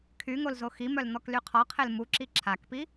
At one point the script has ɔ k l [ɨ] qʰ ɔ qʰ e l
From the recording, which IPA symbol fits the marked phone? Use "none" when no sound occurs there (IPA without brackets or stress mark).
y